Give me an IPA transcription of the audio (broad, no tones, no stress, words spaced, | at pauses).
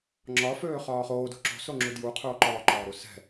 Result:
ŋ͡ǁɒ føːχɒːχoːdo̤ ǁo̤soŋ͡ǁu dju qʰoːǃɒːǃɒːɾu sɛ̤